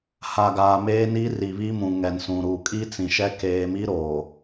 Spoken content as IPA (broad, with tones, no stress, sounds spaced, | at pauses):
h a˨ ɡ aː˨ m eː˦ n i˦ r i˨ β i˦ m ũ˨ ŋ ɛ˨ n s ũ˨ ɾ u˨ kʼ i˦ t͡s ĩ˨ ʃ ɛ˦ k eː˦ m i˦ ɾ oː˨